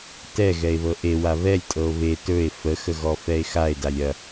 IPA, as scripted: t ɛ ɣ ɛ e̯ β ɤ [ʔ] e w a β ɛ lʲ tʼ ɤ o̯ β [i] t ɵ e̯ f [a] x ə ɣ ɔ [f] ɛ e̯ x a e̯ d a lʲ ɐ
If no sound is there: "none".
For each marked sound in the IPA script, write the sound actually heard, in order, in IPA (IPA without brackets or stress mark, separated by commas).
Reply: ʔ, e, ə, f